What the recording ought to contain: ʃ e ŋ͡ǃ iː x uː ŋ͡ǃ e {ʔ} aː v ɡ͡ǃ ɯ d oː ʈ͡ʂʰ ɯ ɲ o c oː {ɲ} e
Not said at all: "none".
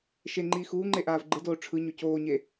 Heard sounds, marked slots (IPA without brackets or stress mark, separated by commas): ʔ, ɲ